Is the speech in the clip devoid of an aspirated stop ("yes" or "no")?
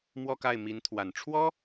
no